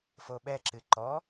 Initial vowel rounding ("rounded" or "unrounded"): rounded